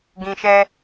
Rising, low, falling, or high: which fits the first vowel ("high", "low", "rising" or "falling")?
low